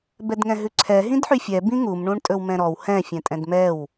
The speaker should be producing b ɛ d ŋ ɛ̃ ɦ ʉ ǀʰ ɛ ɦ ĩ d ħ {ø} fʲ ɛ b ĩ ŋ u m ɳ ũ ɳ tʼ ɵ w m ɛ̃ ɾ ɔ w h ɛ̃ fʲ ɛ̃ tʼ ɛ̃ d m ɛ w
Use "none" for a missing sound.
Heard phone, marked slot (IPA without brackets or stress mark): y